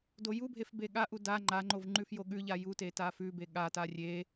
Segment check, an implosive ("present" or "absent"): present